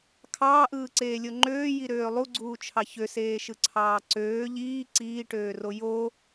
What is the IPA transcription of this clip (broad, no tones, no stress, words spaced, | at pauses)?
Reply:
kʰɑːʔɯːǀeːlʲo ŋ͡ǃøːjiɾøː lˠuɡ͡ǀuːt͡ʃʰɑ çøseːʃɯǀʰɑː ǀøː ʎiː ǀiːʈøːro jo